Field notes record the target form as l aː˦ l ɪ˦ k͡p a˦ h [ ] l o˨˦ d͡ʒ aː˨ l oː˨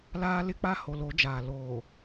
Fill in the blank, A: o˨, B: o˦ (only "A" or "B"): A